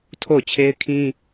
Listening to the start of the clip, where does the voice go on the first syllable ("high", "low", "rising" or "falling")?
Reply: falling